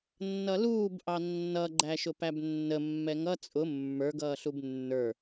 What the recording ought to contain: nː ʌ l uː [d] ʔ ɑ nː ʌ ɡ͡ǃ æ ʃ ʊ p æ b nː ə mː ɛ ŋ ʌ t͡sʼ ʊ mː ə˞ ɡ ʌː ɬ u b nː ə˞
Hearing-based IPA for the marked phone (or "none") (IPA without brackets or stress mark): b